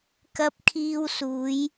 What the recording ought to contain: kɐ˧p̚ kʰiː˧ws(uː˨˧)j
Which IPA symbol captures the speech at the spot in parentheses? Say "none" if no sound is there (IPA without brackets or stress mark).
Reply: uː˨˧